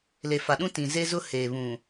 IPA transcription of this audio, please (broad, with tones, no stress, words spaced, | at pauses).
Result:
le˨fa˨ɗũ˦ tĩ˨ ze˦zʊ˦ heː˨βũ˨